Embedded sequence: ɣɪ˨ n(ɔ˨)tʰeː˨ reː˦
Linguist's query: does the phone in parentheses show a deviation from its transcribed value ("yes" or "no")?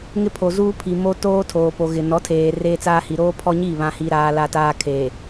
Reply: yes